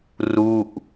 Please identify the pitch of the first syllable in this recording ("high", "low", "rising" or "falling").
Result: falling